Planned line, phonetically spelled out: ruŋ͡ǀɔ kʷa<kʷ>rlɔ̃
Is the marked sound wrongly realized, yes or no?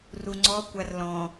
yes